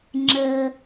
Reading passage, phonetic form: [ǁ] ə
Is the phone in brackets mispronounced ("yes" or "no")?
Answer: yes